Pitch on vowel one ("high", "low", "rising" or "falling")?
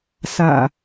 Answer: low